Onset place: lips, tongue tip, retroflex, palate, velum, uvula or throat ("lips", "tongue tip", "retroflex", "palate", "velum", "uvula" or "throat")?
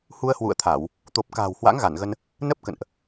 throat